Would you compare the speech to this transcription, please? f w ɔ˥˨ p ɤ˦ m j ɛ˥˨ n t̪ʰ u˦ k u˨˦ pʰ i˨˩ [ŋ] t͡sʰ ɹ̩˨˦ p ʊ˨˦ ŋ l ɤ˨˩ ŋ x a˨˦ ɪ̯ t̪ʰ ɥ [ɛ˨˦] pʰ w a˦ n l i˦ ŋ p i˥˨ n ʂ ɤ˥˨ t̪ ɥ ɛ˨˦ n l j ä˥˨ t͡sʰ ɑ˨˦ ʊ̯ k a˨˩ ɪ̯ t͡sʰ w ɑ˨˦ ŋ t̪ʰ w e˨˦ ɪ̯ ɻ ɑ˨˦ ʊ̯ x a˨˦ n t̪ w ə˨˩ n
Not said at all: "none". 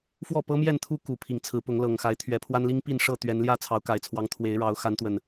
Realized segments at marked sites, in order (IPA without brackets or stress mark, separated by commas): ŋ, ɛ˨˦